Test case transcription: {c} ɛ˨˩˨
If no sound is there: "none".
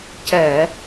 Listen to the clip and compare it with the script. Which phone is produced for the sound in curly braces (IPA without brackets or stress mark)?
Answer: c